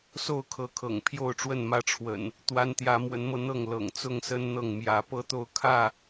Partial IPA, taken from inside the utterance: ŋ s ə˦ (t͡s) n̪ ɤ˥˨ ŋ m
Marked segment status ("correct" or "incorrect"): incorrect